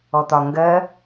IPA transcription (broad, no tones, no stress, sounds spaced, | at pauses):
ɔ t̪ ɒ ŋ ɡ ɜ